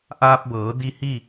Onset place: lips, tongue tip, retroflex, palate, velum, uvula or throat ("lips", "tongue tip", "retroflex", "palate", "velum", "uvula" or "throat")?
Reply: throat